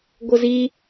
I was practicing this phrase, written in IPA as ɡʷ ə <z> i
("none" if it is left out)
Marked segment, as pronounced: z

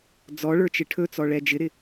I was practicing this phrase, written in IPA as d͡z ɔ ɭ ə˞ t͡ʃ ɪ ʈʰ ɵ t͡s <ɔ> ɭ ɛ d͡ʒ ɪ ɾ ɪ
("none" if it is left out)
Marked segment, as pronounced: ɔ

